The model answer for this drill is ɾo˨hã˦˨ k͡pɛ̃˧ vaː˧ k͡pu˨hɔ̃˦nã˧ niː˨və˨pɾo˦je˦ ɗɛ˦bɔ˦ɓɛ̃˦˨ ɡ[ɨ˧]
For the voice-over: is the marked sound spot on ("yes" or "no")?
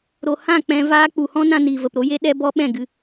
yes